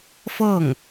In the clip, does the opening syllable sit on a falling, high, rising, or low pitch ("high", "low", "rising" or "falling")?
falling